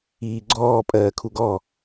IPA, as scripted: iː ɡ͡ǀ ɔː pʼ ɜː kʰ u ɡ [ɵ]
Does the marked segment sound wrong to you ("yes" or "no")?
yes